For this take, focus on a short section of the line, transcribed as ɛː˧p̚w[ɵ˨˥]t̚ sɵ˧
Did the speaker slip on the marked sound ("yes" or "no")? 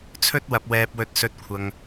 yes